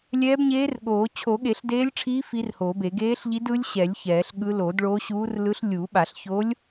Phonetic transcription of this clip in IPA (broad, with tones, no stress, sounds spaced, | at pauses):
lʲ ɛː˧˥ b ɲ eː˧˥ r ɠ oː˨˩˦ t͡ɕʰ o˨˩˦ ɠ e˨˩˦ ɬ d eː˧˥ lʲ ʈ͡ʂʰ iː˧˥ f i˧˥ r h oː˨˩˦ b e˨˩˦ ɡ eː˧˥ ɬ ʎ i˧˥ d ɯ˧˥ lʲ ɕ ɛ˨˩˦ lʲ ç ɛː˨˩˦ ɬ ɠ ɯ˧˥ l oː˨˩˦ d ɭ oː˧˥ ɕ uː˧˥ r l ɯ˧˥ ɬ lʲ uː˨˩˦ ɓ a˨˩˦ ɬ ç o˧˥ lʲ